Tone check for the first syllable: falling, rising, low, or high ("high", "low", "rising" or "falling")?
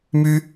high